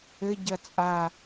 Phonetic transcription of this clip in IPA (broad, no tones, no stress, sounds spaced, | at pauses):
ɘ ɟ ɐ t͡sʼ a